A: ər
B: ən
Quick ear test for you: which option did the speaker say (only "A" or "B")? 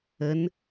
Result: B